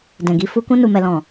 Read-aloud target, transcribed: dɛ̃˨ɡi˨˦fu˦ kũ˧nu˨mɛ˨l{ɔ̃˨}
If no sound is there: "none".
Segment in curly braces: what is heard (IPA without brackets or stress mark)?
ɔ̃˨